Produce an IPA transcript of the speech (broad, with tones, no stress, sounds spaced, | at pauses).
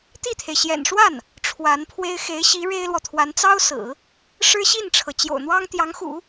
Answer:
t̪ i˥˩ t̪ʰ e˩ ɪ̯ ɕ j ɛ̰˨˩ n ʂ w a˥˩ n | ʈ͡ʂʰ w a˧˥ n pʰ w e˥ ɪ̯ x e˧˥ ɪ̯ ɕ i˧˥ ɻ e˥ ɪ̯ l w ɔ˨ t̪ʰ w a˧˥ n t͡s ɑ˥ ʊ̯ s ɹ̩˨˩˦ | ʂ ɻ̩˥ ɕ i˥˩ n ʈ͡ʂʰ ɤ˩ t͡ɕ j o̰˨˩ ʊ̯ n̪ w ɑ˥ ŋ t̪ j ɑ˧˥ ŋ x ṵ˨˩˦